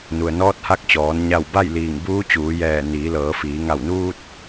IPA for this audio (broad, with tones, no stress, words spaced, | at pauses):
nu˩ə̯nɔː˧˥t̚ha˧˥k̚t͡ɕɔː˩˧n ɲa˧˩w ba˥˨jliː˧˩ŋ buː˧˥t͡ɕuː˩˧jɛː˧˩ niː˩˧lɤː˩˧fiː˩˧ ŋa˧˩wnuː˧t̚